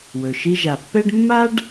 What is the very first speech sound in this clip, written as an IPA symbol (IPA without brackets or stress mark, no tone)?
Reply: w